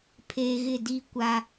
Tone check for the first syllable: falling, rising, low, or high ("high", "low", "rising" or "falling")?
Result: low